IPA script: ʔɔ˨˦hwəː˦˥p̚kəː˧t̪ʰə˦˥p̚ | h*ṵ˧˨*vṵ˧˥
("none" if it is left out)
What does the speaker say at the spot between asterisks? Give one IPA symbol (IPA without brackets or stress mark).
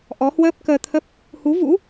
u˨˦